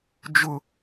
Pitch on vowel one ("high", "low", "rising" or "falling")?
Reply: high